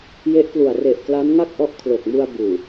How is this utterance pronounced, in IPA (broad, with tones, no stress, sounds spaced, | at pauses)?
j e˦˥ ʔ k l u˨˩ a̯ r e˨˩ ʔ k l a˦˥ n ŋ a˥˩ k̚ ʔ ɔ˦˥ ʔ kʰ l o˨˩ k̚ m u˧ a̯ b uː˨˩